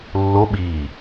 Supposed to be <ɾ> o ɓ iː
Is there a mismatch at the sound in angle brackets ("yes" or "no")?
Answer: yes